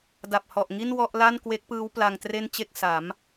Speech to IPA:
da˨˩p̚hɔ˨˩ʔ ŋi˥˩n wɔ˥˩ʔ la˥˩nkwe˦˥k̚pɯː˦˥w pla˧ŋtre˥˩nt͡ɕe˥˩k̚ sa˩˦m

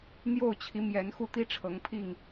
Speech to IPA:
n̪jo˥˨ʊ̯t͡ɕʰi˨˦mjɛ˨˦n xu˦t̪i˦ ʈ͡ʂʰɤ˨˦ŋpʰi˥˨ŋ

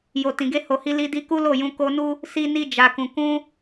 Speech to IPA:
jo˨tĩ˨ɡe˧ ho˨hi˧ li˧di˧ ku˦lo˦˨jũ˧ ko˧nu˦ | si˧ni˧d͡ʒa˨kũ˨ kũ˧

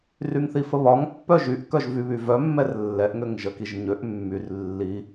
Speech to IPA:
ryŋθifəβɒŋ pːœʒyʔ kœʒvyβyvœ mːɛrlːɛʔ ŋøŋʒəkiʒɲøʔ mːyr lːi

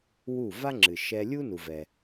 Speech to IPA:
wu˥˩ va˥ŋ͡ǁɨ˩ʃɛ˧ lʲu˥ nu˩vɛ˩

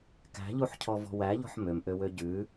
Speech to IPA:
kæ̤ʎuħcʰɔvɔ̤ wæʎɔ̤ħ mømʔøwø ɟʉ

